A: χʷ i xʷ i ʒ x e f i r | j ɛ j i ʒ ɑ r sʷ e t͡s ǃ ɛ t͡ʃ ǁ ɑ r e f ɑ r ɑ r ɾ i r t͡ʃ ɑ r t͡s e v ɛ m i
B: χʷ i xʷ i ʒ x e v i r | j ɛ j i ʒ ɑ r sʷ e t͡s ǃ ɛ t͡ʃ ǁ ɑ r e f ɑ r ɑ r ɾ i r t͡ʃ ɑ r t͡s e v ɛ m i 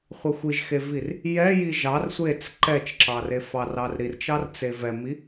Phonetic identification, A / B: B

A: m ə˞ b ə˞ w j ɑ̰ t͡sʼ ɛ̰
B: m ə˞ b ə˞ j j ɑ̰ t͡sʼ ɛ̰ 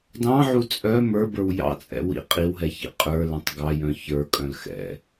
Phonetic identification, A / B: A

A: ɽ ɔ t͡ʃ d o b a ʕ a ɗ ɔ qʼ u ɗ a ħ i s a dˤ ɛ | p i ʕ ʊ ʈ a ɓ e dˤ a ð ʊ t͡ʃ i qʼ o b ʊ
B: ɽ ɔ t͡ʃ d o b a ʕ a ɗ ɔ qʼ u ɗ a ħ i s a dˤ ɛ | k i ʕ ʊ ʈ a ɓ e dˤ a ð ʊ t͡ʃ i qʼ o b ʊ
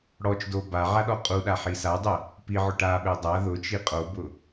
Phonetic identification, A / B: A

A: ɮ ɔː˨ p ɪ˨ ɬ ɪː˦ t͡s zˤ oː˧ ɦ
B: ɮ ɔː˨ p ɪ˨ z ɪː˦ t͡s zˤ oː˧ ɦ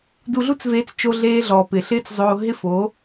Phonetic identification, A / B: A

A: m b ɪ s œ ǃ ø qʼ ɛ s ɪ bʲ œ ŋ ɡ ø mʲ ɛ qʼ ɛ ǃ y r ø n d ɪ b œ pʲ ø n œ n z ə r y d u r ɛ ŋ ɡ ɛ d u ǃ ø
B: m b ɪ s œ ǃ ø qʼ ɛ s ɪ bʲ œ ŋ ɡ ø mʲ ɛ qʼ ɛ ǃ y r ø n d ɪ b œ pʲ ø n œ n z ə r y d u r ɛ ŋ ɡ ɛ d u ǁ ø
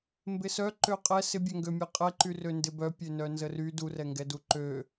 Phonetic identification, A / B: A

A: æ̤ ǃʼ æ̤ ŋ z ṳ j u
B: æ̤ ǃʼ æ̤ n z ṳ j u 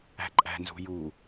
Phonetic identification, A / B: B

